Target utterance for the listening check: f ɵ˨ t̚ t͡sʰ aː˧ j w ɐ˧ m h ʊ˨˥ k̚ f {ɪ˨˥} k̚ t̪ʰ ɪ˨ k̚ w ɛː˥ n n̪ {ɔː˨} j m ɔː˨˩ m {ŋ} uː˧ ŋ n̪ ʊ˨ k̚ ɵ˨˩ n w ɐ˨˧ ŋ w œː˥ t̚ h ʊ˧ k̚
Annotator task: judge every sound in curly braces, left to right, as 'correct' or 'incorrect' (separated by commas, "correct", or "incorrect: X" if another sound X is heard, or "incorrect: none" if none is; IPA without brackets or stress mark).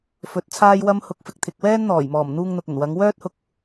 incorrect: ɪ˨, incorrect: ɔː˨˩, incorrect: n̪